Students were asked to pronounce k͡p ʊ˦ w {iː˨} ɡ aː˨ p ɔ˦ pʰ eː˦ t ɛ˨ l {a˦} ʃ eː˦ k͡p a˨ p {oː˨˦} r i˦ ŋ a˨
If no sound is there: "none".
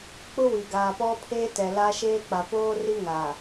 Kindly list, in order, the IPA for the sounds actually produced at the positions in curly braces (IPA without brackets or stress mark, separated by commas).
i˨, a˦, oː˦